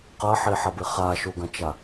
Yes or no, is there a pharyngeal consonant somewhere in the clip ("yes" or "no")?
yes